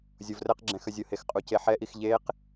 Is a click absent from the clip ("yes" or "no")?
no